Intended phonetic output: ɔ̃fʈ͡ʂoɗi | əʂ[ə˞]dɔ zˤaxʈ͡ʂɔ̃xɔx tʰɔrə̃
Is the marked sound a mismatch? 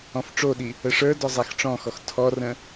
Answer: no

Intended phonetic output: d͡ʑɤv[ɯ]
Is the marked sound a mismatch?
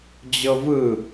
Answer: no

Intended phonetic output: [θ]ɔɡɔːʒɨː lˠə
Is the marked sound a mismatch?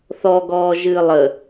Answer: no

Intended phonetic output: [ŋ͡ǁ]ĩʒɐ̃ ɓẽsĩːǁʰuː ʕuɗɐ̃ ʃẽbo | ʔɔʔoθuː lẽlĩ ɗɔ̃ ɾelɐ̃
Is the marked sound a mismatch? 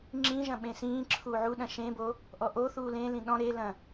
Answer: no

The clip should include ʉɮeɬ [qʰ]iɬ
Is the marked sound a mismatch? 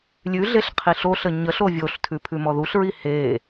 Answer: no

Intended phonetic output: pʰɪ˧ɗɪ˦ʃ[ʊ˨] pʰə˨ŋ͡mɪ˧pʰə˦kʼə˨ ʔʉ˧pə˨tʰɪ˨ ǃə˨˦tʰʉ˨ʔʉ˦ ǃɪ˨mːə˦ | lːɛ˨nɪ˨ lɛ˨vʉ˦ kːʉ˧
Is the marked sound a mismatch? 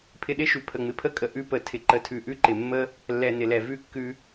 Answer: yes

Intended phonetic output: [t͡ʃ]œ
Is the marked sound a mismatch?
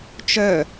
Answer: no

